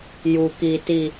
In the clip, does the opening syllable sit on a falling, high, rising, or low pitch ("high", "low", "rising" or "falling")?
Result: low